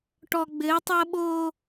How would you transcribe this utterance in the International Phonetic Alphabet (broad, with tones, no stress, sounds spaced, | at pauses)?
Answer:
ʈ ɔ˨ ɡ͡b ɘː˨˦ tˤ ɐː˦ ɓ oː˦